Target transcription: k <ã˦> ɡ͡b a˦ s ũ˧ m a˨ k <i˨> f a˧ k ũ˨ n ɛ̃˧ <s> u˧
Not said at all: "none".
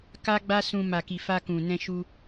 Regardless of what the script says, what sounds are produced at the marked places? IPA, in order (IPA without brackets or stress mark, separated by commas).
a˦, i˨, ʃ